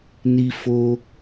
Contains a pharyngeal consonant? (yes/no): no